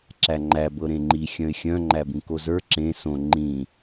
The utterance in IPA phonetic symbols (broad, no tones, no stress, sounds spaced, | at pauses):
ǁ æ ŋ͡ǃ æ b ɤ ɾ ẽ ŋ͡ǃ i xʲ œ̃ ɪ̯ xʲ œ̃ ŋ͡ǃ æ b ĩ k o z ə˞ ǁ ẽ s õ ŋ͡ǃ ĩ